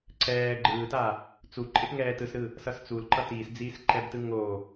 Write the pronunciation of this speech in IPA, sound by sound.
ǀ ɛː ɡ͡ǃ ɯː t a | t͡s u ǃʼ e p ŋ ɛː t ɯ s ɾ ɯ | s ʌ s t͡s u l ǃ ʌ t iː s d͡z iː s ǃ ɛ b t ɯ ŋ o

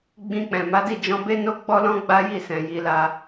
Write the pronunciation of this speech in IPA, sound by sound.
ɡ͡b ĩ˧ k͡p ɛ̃˨ m a˨˦ d i˦˨ d͡ʒ ɔ̃˧ b e˦ n o˦ ɡ͡b ɔ˦ l ɔ̃˦ ɡ͡b a˦ j i˦˨ s ɛ̃˨ j i˧ l a˧

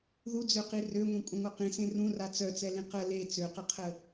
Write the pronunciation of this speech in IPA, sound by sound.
ð u d͡z ø q i r ø ŋʷ ẽ kʷʼ ə̃ ŋʷ œ q ĩ s ẽ r ũ r a t͡s œ t͡s ɛ l ĩ q ə l e t͡s ø q ə qʰ ə

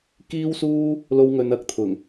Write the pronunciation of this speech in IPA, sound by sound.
k iː˥ w s uː˥ | l o˥ w ŋ ɵ˧ n ɐ˨˥ k̚ t̪ʰ ʊ˨˩ ŋ

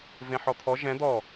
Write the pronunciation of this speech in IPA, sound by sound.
v ẽ ħ ɔ t̪ʰ ɔ ʒ ɛ̃ d̪ ɔ

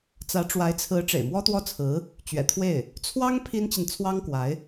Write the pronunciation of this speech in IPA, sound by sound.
t͡s ä˧˥ ʈ͡ʂ w a˧˥ ɪ̯ t͡sʰ ɹ̩˧˥ ʈ͡ʂ ḛ˨˩ ɪ̯ m w ɔ˥ t̪ w ɔ˥ t͡sʰ ɹ̩˧˥ | t͡ɕ ɥ ɛ̰˨˩ t̪ʰ w e˥˩ ɪ̯ | t͡sʰ w ɑ˥ ŋ pʰ i˥ n t͡ɕ i˨ n t͡sʰ w ɑ˥ ŋ k w a˧˥ ɪ̯

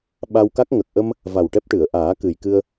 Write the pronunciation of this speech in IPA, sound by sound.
ɓ a˧ w k a˦˥ k̚ ŋ ə˨˩ k̚ ʔ ə˧ m | v a˨˩ w ʈ ɛ˦˥ p̚ ʈ ɨ˨˩˨ ə̯ ʔ aː˨˩˦ k ɨ˨˩ j k ɨ˧ ə̯

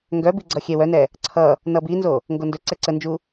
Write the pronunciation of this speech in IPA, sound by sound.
ŋ ɡ œ b i ɡ͡ǀ ʌ xʲ ɛ w œ n ɛ | ǀʰ ʌ | n ʌ b i n z o | ŋ ɡ o n d ɵ ǀ ɛ ǀ ə n d͡ʒ u

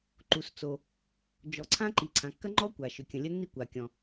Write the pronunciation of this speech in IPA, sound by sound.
ǃ u˩ s t͡s o˩ | d͡ʒ ɔ˩ ǀʰ ã˥ ǃ i˩ ǀʰ ã˩ kː ɐ˥ ŋ͡ǃ ɔ˥ kʷ a˩ ʃ ʏ˩ kʲ ə̃˩ lʲ ə˥ nː i˥ kʷ a˩ kʲ ɔ̃˩

